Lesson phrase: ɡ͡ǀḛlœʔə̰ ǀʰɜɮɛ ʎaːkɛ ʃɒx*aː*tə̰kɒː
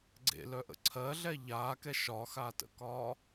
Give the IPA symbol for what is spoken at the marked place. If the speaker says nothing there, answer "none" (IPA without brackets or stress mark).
aː